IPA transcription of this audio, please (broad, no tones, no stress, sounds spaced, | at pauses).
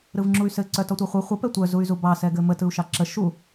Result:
ɾ ɯ v ŋ͡ǁ u y̯ s ɘ ǀ œ t ɔ tʷ ɑ χʷ ɯ χʷ ə p ɛ tʷ œ z u y̯ z u b ɑ s ɛ ɡ ɘ m ə t ɯ u̯ ʃ ɑ ǁ ə ʃ u